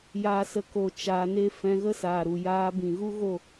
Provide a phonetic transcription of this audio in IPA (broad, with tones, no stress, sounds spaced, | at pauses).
j aː˦ s ə˦ k o˦˨ t͡ʃ aː˧ n e˦ f ɛ̃˧ ɣ ə˦ s aː˨ ɾ u˨ j aː˧ b ĩ˨ ɣ u˦ ɣ o˦˨